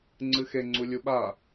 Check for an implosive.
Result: present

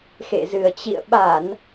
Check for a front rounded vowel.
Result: absent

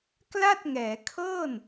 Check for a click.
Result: absent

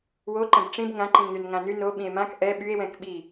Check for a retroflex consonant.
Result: present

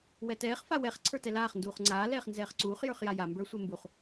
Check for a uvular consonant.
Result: present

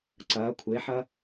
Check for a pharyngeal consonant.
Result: present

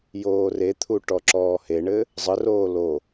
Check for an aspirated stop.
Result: present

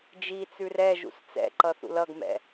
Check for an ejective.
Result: absent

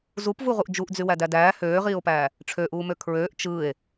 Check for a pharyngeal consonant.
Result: absent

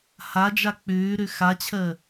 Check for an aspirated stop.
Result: present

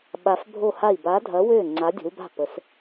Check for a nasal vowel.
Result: absent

